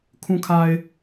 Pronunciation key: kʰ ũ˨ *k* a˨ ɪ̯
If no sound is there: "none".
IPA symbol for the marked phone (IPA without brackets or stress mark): kʰ